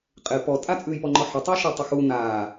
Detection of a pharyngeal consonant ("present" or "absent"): present